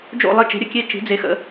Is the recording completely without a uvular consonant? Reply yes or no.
yes